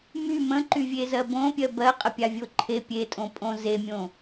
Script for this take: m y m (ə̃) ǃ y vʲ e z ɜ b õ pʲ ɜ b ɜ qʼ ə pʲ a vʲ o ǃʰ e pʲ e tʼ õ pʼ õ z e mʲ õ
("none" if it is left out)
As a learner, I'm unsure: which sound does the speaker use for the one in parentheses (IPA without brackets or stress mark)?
ə̃